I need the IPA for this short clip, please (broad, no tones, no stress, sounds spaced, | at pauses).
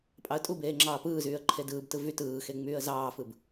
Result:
pʼ ɑ ə̯ tʼ u b eː ŋ͡ǁ ɑː p ɯː z yː ə̯ ǃʰ e d ɯː b t ɯ v y t ɯː x e ŋ͡m yː ə̯ z ɑː f ɯ b